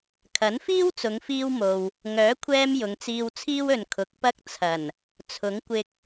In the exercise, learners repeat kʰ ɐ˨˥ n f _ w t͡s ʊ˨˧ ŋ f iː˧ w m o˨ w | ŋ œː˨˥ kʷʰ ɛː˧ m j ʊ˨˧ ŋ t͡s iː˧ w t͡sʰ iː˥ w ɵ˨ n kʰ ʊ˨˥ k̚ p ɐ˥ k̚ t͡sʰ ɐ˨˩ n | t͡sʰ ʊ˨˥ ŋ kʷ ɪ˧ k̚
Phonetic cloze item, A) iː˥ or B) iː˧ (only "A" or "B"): A